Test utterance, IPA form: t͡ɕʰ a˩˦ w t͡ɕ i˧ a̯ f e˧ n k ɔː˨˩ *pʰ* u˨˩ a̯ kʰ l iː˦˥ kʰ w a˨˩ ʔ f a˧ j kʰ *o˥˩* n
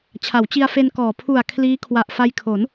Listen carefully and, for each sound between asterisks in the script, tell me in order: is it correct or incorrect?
correct, incorrect: o˩˦

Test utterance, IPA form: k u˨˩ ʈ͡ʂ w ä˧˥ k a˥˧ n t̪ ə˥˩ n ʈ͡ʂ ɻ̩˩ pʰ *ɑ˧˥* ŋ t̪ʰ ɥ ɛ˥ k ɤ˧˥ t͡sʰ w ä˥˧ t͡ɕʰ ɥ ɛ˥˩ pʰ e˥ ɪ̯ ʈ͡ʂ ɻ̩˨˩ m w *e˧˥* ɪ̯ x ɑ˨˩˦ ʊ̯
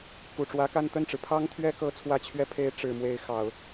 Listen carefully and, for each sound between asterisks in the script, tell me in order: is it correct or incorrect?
incorrect: ɑ˥, correct

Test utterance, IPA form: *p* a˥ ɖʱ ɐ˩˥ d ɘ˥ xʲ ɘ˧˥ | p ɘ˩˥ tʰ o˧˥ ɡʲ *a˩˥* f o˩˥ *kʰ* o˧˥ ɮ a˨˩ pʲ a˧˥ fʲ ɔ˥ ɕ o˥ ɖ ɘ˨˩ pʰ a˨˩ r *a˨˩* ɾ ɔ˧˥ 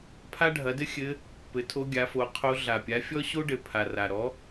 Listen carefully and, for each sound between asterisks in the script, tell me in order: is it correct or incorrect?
incorrect: pʰ, correct, incorrect: qʰ, correct

